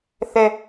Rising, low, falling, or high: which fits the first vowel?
high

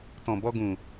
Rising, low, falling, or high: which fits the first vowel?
low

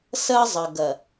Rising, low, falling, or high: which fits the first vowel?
high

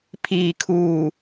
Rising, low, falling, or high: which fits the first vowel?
low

